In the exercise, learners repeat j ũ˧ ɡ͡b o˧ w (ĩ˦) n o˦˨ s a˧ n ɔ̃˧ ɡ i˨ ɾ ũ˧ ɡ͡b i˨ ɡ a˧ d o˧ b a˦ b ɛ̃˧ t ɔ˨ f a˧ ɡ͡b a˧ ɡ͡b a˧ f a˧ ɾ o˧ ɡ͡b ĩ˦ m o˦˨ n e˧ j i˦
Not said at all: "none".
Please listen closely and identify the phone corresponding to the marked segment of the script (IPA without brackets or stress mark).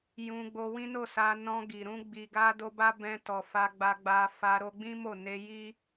ĩ˦